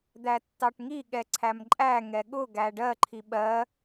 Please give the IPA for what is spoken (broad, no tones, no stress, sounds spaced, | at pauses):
d̪ æ tː ɑ ʈ ŋ i ɠ ɛ ǀʰ æ m ǃʼ æ ŋ ɛ ɠ ʊ ɡ æ ɖ ɜ ǃʰ i ɓ ɜ